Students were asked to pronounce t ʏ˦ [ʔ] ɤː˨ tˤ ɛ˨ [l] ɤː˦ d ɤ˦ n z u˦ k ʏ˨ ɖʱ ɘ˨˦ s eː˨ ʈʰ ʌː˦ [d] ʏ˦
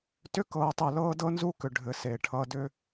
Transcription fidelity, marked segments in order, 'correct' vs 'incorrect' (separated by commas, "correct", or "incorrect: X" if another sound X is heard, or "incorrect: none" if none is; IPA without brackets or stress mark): incorrect: k, correct, correct